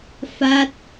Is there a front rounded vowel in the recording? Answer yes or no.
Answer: no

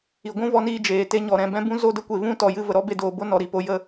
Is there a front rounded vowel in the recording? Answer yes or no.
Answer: no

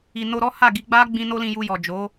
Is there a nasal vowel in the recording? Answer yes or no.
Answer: yes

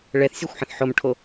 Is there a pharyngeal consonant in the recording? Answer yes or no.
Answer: yes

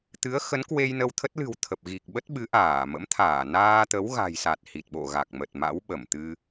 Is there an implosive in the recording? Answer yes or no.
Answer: yes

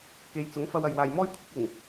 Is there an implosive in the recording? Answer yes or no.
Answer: no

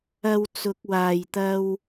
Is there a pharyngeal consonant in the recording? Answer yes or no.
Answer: no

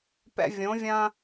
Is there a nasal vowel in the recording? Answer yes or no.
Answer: yes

